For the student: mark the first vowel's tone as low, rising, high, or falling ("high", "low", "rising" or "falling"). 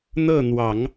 falling